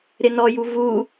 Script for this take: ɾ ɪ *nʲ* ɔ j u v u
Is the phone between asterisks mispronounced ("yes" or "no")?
yes